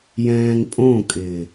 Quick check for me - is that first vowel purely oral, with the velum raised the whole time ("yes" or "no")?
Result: no